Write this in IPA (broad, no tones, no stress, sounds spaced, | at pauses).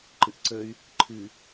ǃ ɨ ʔ ǀ ə y̯ | ǃʰ ɨ